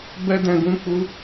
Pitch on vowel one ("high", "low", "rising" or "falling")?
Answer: high